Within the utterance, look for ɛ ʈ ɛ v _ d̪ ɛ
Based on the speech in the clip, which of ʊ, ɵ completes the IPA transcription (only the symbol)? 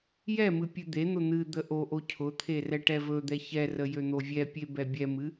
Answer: ɵ